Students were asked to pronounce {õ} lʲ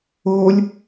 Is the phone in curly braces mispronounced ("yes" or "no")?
yes